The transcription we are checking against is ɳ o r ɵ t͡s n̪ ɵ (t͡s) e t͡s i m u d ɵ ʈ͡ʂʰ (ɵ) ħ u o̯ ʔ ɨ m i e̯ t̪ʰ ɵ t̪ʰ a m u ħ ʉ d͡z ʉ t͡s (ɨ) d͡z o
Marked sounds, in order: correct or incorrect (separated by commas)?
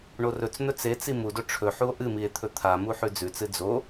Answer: correct, correct, correct